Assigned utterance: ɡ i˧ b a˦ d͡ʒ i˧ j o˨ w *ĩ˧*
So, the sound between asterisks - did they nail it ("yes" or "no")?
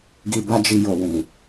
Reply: no